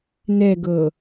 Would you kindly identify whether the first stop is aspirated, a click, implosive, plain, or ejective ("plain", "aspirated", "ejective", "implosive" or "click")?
plain